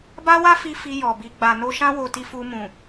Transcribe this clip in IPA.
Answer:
b a˦ w a˦ f i˧ f i˧ j ɔ˨ b i˨ ɡ͡b a˨ n o˧ ʃ ã˦ w o˧ t i˧ f u˧ m ũ˨

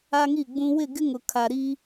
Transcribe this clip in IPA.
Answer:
a˦ ŋ i˦˨ ɡ͡b ũ˦ w ɪ˦˨ ɡ ɪ˦ ŋ ʊ˨ kʰ a˨ ɾ i˦

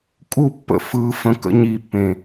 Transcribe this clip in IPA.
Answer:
kʼ u˦˨ pː ə̰˨ f ɯː˦ f ə̃˦ k ə̰˦ ɲ i˦˨ pː ẽ˨

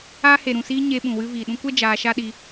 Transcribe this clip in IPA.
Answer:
aː˧ h e˨ ɾ ũ˨ s iː˧ ɲ e˧ ɓ ũ˨ w ɨ˧ v iː˨ ɗ ũ˧ kʷ ɛ˦ d͡ʒ aː˧ ʃ a˦ ɗ i˧

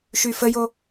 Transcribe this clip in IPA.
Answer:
ʃ y f ə j o

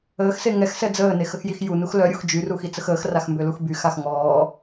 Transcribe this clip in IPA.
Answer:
əː x s e ŋ ɛ x s ɛ d͡z əː n e x ə x j i x j u n u x l œ ɾʲ u x d͡ʒ y r u x i t͡s ə x əː x r a x m b ø l u x b y x a x ŋ ɔː

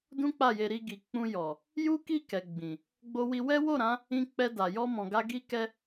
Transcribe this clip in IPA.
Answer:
d ũ˦ k͡p a˦˨ j e˧ ɾ i˧ ɡ i˨ k͡p ũ˧ j ɔ˨ | j u˦ k i˦˨ k ɛ˨ ɡ͡b ĩ˨ | ɡ͡b o˧ w i˧ w ɛ˦ w o˦˨ ɾ ã˨˦ | ĩ˧ k͡p ɛ˧ d a˨ j ɔ˧ m ɔ̃˨ ɡ a˧ ɡ i˦ k ɛ˦

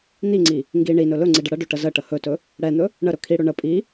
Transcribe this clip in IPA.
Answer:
n̪ i ŋ͡ǀ i | ŋ ɡ i ɳ i n ɵ l ɵ ŋ͡ǀ i ɖ ə ɽ ə ɖ ɵ ʈ ə z ə ʈ ə h ɵ t ɵ | ɽ ɛ n̪ ɵ | ɳ ə ɾ ɵ kʰ i ɽ ɵ ɳ ə pʼ i

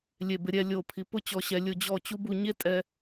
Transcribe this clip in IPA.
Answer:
lʲ e˧˩ b ɪ˧ ɾʲ ɛ˧ lʲ o˧˩ pʰ i˩˧ p ʊ˥ t͡ɕ ɔ˧ ɕ ɛ˧ lʲ ʊ˥˧ d͡ʑ ɔ˥˧ t͡ɕ u˥ b u˥˧ ɲ e˥ tʼ ɛ˧

